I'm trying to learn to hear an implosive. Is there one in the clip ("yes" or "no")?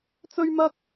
no